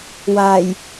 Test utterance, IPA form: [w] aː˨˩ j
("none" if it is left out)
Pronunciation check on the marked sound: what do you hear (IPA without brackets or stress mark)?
w